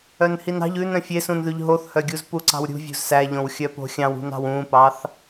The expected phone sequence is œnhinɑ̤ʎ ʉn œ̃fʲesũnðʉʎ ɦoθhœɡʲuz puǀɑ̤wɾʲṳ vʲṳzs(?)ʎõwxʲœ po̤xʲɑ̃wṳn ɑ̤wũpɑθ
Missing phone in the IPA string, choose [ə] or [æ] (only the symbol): æ